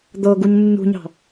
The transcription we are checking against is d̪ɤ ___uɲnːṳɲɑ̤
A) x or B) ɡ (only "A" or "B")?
B